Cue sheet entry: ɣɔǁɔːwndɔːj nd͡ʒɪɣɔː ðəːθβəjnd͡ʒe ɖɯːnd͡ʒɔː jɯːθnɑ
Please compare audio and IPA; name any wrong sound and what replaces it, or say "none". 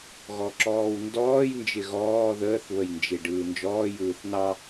none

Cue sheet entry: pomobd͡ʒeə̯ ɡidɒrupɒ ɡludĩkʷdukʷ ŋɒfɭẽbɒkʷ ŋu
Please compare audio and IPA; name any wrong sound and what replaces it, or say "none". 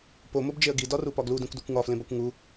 ɭ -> l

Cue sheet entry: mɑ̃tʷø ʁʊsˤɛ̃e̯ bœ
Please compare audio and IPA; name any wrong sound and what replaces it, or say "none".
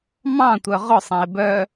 ø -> œ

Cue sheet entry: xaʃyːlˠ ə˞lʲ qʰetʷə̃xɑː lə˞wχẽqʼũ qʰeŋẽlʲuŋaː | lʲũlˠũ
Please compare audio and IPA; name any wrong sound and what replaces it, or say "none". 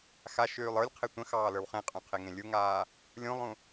none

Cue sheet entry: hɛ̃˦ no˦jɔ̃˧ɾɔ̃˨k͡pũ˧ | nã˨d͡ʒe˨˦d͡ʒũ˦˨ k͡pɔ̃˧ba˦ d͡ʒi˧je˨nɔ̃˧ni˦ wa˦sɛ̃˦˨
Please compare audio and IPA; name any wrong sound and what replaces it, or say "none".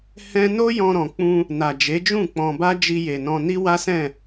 ã˨ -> a˨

